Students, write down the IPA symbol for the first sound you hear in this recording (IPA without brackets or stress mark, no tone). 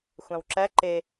xʷ